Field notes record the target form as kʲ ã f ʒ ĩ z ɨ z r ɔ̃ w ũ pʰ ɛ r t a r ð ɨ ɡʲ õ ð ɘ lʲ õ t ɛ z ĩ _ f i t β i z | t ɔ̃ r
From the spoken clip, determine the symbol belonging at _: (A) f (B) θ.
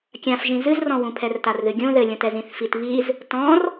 B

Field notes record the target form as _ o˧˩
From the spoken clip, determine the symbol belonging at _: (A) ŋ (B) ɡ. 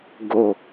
B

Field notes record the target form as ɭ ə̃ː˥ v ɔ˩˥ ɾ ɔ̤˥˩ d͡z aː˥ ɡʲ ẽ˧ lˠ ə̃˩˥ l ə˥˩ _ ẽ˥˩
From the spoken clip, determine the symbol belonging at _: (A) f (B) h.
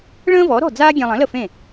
A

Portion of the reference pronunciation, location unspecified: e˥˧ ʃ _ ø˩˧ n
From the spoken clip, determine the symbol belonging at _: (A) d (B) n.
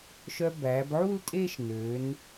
B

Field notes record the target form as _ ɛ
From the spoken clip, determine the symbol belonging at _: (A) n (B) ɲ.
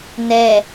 A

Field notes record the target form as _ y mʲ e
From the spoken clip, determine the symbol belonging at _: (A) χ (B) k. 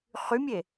A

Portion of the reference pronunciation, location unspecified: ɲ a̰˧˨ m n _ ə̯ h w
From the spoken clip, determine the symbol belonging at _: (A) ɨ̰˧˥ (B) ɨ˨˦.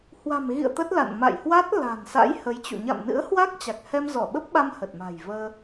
A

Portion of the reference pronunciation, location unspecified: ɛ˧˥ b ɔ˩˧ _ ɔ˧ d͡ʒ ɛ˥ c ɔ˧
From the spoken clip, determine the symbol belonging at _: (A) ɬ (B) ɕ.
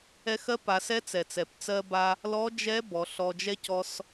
A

